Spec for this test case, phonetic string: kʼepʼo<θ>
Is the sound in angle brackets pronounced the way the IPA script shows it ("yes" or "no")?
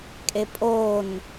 no